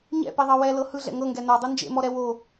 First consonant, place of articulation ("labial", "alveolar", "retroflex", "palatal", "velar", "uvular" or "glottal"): palatal